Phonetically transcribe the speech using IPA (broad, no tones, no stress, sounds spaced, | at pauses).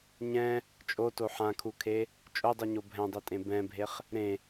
ɲ ɛ̃ | t͡ʃʼ o t o ħ ã kʰ u kʰ e | t͡ʃʼ o dˤ u ɲ o bʱ ɛ̃ dˤ e tʼ ẽ b ɛ̃ bʱ e χ | ɾ ẽ